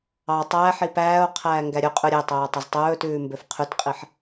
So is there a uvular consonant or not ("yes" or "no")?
yes